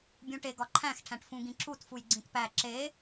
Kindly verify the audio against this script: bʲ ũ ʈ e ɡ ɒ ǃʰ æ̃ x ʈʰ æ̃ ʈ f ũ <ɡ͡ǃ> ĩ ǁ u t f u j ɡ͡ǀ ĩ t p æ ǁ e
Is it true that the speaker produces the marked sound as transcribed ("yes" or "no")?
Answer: no